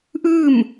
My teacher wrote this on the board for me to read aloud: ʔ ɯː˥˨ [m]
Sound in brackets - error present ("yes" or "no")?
no